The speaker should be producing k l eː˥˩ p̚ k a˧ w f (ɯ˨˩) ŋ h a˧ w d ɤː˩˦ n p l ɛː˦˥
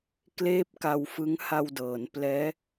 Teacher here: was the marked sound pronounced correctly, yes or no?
no